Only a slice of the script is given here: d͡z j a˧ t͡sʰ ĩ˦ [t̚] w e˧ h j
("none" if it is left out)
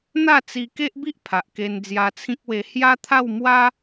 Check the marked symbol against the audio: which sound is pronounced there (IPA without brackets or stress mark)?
k̚